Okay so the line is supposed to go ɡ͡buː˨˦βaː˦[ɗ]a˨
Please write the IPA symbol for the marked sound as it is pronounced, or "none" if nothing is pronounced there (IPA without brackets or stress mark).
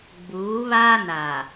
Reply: n